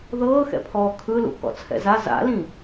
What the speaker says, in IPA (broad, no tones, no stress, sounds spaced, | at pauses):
ð ɤː x ɛ̰ pʰ ɔː kʰ ɯ l ṵ k ɔ̰ t͡sʰ ɛ̰ z a z a̰ l ĩ